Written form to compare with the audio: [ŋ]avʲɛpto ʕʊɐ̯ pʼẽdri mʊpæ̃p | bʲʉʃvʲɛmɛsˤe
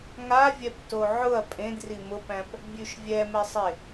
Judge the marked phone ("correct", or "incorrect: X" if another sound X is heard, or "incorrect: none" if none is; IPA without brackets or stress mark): correct